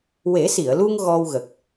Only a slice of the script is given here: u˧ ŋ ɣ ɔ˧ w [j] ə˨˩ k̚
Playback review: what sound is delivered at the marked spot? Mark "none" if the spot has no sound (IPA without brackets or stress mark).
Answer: ɣ